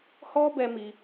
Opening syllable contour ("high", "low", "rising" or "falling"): high